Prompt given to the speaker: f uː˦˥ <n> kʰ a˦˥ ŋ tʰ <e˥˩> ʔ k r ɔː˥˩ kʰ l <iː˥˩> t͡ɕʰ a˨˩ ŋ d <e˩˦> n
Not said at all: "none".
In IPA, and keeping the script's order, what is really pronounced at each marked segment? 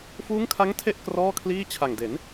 ŋ, e˥˩, iː˥˩, e˩˦

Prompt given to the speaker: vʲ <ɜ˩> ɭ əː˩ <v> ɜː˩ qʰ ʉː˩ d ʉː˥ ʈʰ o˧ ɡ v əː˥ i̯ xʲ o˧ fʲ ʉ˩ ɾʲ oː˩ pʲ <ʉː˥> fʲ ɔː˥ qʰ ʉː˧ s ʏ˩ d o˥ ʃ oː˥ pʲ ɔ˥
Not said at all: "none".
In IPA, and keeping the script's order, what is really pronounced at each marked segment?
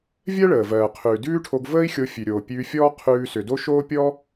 ɜ˥, v, ʉː˧

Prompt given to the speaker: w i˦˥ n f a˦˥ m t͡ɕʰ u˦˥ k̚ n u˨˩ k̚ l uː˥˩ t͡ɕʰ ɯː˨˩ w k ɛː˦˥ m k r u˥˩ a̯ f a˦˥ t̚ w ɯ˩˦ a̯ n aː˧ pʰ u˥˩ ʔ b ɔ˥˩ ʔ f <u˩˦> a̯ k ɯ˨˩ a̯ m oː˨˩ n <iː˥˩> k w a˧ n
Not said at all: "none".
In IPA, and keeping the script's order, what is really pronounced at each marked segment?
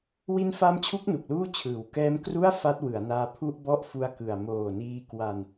u˦˥, iː˧

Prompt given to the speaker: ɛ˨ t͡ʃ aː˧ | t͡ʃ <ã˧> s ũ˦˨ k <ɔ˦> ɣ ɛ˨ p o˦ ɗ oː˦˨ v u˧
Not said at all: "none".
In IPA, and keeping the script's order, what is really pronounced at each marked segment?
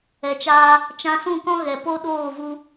ã˧, ɔ̃˦

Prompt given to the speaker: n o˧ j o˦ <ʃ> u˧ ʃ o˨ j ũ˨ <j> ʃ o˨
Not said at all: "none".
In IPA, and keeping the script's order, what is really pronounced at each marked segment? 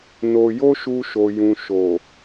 ʃ, none

